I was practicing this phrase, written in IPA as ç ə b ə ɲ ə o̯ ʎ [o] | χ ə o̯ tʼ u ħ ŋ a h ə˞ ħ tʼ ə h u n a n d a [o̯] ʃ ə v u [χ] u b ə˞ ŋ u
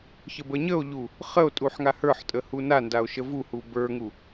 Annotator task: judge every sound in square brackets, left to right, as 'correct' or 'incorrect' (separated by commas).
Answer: incorrect, correct, incorrect